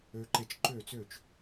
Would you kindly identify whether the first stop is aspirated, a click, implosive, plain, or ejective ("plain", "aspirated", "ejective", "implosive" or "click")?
click